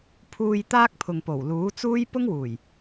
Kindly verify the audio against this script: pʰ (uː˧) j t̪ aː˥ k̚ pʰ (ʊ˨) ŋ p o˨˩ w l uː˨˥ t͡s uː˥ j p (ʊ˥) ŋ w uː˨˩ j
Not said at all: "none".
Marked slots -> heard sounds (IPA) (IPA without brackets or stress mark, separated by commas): uː˧, ʊ˨, ʊ˥